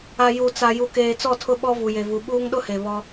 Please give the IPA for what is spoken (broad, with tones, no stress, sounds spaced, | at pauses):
a˨ j u˨ t͡s a˨ j u˨ k eː˨ t͡s ɔ˦˨ tʰ ʊ˦ ɓ ɔ˦ v u˨ j e˨ v u˨ ɓ uː˦ ŋ ɗ ʊ˦ h e˨ β ɔ˦